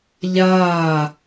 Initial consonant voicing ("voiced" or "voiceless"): voiced